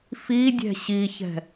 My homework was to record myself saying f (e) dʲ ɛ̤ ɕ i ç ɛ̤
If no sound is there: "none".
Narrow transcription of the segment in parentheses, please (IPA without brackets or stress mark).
i